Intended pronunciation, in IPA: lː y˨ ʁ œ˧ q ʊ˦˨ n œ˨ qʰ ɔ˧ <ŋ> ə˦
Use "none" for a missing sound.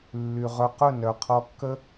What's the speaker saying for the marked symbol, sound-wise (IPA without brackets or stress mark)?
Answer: kː